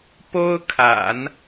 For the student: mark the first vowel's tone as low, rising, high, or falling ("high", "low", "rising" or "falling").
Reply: high